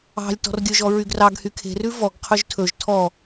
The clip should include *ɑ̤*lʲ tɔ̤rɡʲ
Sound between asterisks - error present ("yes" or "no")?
no